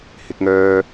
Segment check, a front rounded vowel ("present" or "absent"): present